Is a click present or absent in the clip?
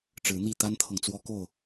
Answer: absent